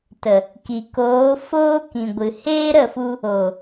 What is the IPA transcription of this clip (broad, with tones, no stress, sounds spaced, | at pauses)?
t ə˨ | k i˨ k oː˨˦ f oː˦ k ĩ˨ ɡʷ ɨ˨ h eː˦ ɾ ə˦˨ f u˧ | o˨